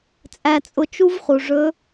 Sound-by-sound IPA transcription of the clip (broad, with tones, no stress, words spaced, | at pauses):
t͡sʼæ˧t͡sʼʊ˧ t͡ʃu˥vχu˩ʐɵ˧˥